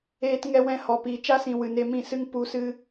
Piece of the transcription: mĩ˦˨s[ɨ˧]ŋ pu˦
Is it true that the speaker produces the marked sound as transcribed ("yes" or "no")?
no